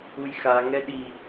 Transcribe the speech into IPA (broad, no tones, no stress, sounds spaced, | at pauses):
u j x a ŋ ɛ ɗ i